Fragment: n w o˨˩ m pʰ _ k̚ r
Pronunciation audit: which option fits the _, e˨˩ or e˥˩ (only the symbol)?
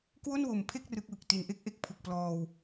e˥˩